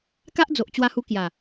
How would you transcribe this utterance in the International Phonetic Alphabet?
ka˦ʔd͡zo˨ʔ t͡ɕwa˧hu˧ kja˨˩

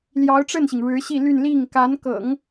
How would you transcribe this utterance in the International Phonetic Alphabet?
ljɑ˧˥ʊ̯ʈ͡ʂə˥˩nɕi˩ŋ ɻɻ̩˧˥ɕi˥˧ly˥˧n li˥˩ŋ ka˧˥nkɤ̰˨˩˦ŋ

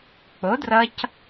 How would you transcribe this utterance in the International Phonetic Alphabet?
k͡po˨˦drʌ˧c

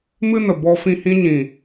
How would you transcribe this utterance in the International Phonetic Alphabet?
mɨ˦nə˨bɔ˧ fĩ˧hĩ˧ɲĩ˨

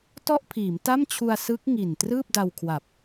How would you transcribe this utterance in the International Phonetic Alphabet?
tɔ˥˩ʔpʰiː˩˦mta˥˩mt͡ɕʰu˧a̯ sɯ˦˥k̚ŋi˨˩n trɯː˥˩p̚da˧wkʰwa˨˩p̚

